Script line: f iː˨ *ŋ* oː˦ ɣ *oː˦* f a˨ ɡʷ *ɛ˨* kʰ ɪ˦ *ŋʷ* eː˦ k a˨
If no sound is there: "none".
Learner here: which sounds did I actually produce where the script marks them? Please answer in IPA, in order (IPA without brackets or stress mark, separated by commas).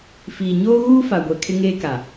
ɲ, uː˦, ɛ˨, ŋ